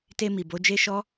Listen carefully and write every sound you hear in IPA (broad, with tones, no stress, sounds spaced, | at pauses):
t e˧ m i˨ b o˨˦ d͡ʒ e˦ ʃ ɔ˦